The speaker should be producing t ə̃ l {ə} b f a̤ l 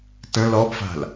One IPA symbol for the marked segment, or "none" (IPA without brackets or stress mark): ɔ